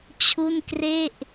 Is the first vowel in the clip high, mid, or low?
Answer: high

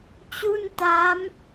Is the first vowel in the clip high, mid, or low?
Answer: high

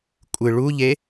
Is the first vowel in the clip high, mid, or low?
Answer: high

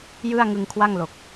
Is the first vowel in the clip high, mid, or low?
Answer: high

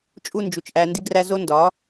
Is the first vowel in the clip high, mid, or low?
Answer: high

